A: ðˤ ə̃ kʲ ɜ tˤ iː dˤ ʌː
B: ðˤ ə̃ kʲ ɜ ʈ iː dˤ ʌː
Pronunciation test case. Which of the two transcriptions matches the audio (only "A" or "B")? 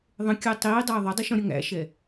A